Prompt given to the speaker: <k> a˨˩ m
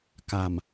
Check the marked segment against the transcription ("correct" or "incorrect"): correct